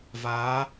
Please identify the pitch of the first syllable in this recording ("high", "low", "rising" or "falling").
rising